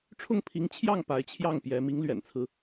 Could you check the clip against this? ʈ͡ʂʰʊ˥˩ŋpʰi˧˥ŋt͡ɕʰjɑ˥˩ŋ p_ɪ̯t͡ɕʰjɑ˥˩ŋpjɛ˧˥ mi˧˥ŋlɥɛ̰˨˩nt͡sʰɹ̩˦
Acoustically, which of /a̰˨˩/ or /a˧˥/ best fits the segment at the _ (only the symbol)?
a˧˥